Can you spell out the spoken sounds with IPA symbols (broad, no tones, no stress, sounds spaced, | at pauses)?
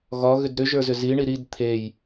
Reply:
ɣ ɒ ɣ ʏ d ɾ ʏ ʒ ə˞ z ʏ z i ɳ i ɾ i d t̪ʰ e j